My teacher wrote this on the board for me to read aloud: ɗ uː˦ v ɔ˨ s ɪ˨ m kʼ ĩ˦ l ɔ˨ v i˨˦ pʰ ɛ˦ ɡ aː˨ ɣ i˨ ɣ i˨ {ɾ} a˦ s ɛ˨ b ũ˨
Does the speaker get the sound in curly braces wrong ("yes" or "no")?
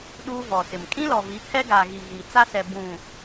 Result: yes